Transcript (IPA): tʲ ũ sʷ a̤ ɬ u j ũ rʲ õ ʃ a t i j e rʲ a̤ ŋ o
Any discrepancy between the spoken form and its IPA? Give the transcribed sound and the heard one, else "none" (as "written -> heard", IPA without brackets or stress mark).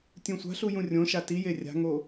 none